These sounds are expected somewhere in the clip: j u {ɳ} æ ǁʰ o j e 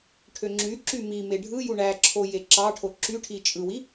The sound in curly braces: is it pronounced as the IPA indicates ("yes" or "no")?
yes